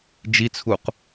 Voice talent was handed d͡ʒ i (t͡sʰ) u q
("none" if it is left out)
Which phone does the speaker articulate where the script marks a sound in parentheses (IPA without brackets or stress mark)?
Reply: t͡sʰ